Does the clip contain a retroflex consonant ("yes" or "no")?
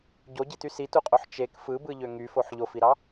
no